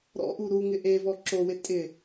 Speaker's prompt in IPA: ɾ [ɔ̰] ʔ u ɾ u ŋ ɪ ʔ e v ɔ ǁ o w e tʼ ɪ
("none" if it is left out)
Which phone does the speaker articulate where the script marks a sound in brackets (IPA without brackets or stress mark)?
ɔ̰